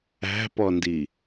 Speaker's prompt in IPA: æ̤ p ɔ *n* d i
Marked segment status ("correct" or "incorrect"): correct